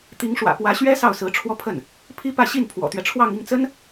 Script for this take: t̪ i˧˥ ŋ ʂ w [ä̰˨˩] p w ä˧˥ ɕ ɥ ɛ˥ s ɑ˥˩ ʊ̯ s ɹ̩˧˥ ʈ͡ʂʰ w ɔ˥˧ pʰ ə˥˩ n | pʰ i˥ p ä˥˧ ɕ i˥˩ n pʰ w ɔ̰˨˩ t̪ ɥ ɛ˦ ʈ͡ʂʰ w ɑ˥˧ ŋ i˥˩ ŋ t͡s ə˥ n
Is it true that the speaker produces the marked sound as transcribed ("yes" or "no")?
yes